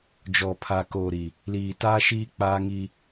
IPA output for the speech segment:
d͡ʒ ɔ˨ pʰ aː˨ k oː˨ ɾ i˨ | l iː˨ t aː˦ ʃ iː˦ k͡p aː˦ ŋ i˦

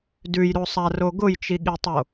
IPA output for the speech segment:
d ʉ j ɾ o sˤ a r o ɡ ʊ j t͡ʃ i ɠ i tˤ o

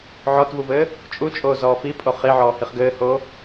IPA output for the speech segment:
ʕ ɔ t v u v ɘː | t͡ʃʼ u t͡ʃʼ oː z ɔː f i pʼ o χ i ʕ ɔː h i χ ɡ ɘː h oː

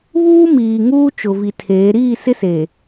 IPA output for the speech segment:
β uː˦ m iː˨ ŋ uː˦ t͡ʃ ʊ˨ v i˨ tʰ eː˨˦ ɾ iː˦˨ s ɪ˦ s e˨

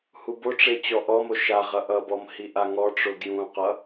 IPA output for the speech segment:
h u b o ʈ͡ʂ e t͡ɕ ɔ ʔ ɔ m o ʃ a ʁ ʌ ʔ ʌ b ɔ m h i ʔ a ŋ ɔ ʈ͡ʂ o ɡ j ũ q ʌ

